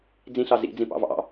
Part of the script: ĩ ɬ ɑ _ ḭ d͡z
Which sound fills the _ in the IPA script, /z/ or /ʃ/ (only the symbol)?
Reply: z